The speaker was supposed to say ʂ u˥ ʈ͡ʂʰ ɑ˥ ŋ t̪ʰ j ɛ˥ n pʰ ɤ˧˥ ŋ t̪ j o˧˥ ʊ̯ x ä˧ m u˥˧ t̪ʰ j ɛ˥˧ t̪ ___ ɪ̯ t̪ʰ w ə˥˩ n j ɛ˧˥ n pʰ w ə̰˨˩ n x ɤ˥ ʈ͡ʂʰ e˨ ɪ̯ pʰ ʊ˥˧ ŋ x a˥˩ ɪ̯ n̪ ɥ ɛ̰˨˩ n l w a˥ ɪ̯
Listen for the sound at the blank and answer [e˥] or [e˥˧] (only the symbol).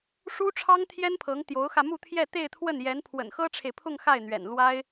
e˥˧